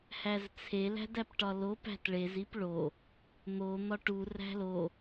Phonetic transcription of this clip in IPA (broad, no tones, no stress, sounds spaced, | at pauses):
h æ z t͡sʰ e l æ̤ d æ p ʈ ɒ l o p æ̤ t ɭ e z i p ɭ o | n̪ o n̪ ɒ ʈ u r æ̤ l o